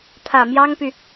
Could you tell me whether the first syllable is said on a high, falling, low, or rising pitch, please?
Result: low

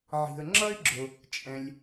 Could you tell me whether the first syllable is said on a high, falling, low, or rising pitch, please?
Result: low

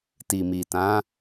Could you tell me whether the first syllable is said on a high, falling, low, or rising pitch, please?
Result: low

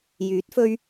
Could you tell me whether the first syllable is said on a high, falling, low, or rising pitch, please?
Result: rising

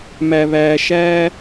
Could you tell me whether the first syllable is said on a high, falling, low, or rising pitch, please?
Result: low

